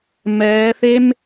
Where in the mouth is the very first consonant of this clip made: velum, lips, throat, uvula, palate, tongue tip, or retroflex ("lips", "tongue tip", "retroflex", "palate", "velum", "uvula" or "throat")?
lips